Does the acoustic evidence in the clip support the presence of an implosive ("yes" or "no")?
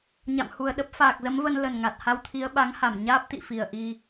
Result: yes